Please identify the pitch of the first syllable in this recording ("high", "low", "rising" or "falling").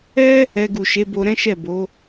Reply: high